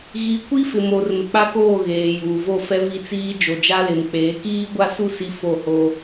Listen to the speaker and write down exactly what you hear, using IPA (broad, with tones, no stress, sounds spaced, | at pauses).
ɣ i˨˦ kʷ i˦ f ɪ˨ m o˨ r m ɪ˨ k͡p a˦ k oː˦˨ ɣ eː˨ j uː˨ v o˦˨ f ɛ˦ v i˦ t͡s iː˦ d͡ʒ o˨ d͡ʒ a˦ l ɪ˨ m k͡p eː˨˦ k iː˦ ɡʷ a˦ s u˦ s i˦ f o˦˨ h o˦